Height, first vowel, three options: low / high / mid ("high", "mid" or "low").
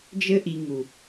mid